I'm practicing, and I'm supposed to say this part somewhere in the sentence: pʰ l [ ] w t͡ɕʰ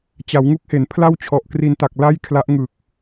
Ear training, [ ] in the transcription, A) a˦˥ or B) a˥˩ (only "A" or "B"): B